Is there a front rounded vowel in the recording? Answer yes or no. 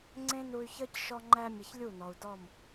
yes